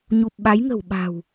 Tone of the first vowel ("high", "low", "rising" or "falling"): low